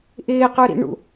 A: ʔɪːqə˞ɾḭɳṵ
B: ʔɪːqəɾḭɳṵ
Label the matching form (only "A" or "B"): A